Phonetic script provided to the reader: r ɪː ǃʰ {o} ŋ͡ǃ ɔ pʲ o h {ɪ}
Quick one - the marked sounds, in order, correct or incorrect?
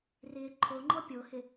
correct, correct

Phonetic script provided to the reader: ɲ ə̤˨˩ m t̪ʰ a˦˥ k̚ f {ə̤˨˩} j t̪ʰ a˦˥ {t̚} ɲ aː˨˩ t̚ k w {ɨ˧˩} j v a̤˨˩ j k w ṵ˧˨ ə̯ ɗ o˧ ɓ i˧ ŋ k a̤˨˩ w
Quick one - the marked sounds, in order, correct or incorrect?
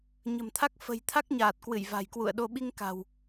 correct, incorrect, correct

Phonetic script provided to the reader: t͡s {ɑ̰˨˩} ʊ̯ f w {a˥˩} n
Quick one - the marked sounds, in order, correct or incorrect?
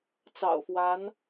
correct, incorrect

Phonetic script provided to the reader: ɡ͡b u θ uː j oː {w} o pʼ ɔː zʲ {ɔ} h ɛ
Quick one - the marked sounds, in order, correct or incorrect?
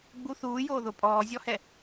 incorrect, correct

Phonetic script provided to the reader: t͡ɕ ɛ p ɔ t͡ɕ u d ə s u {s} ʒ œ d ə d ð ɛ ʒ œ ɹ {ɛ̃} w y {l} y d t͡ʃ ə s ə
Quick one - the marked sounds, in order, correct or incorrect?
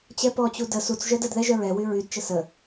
incorrect, incorrect, incorrect

